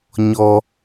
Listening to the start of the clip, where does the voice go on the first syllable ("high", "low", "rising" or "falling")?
high